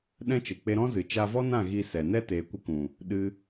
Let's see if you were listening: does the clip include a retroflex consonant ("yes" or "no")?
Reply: no